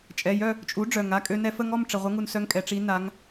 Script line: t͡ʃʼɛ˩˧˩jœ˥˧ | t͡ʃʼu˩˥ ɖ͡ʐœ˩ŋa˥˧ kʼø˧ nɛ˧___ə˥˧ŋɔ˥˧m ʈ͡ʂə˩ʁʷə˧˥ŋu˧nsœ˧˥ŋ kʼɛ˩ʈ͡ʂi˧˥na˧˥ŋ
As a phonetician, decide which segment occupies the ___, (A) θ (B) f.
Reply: B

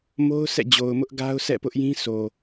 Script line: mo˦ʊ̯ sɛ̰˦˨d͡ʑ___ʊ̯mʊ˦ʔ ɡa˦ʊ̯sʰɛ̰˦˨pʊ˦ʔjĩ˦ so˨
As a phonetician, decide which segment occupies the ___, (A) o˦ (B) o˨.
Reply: B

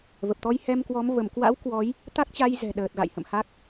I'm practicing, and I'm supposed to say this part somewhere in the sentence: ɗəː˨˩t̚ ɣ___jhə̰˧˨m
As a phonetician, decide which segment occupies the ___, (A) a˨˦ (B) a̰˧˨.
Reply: B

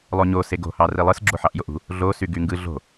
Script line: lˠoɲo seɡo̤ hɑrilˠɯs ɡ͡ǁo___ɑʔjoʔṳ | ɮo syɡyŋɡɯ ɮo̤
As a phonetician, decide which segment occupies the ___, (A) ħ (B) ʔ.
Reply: A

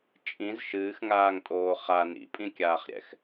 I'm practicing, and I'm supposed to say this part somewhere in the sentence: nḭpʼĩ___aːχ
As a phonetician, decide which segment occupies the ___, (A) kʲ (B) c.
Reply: A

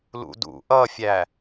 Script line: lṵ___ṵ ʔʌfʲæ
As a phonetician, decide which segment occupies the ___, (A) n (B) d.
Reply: B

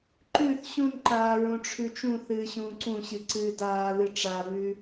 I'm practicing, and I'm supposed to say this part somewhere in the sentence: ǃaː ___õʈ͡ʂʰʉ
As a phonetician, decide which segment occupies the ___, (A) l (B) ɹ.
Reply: B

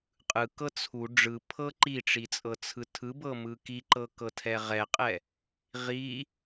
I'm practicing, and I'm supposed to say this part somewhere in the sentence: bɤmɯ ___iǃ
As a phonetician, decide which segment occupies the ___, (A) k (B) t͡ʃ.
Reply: A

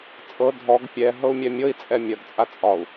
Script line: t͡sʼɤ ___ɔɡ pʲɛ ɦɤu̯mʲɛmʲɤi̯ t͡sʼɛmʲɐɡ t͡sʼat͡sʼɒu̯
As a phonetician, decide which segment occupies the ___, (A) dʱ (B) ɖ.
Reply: A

